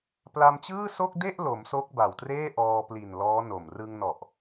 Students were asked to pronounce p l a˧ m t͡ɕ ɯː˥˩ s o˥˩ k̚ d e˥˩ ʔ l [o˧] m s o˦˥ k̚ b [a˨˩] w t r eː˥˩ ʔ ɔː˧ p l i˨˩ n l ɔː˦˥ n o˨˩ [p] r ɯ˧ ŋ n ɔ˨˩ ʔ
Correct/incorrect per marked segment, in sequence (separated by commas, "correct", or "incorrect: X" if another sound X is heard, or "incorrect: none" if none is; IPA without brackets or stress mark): incorrect: o˩˦, correct, incorrect: m